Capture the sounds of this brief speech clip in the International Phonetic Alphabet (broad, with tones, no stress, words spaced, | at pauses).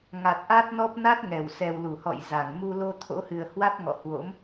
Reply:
ŋa˨˩t̚ʔa˦˥t̚nɔ˦˥p̚ na˦˥t̚ ŋɛ˧˩w sɛ˨˩wlu˧˩hɔ̰˧˨j za˧˩ŋ mu˧lo˧ t̪ʰo̰˧˥hɨ˨˩ə̯ hwa˦˥t̚ŋɔ̰˧˨hwo̰˧˥m